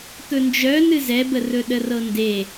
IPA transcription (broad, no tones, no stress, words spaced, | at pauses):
t̪ɵnd͡ʒœ nɨzɛbərɵ ɗərɤnde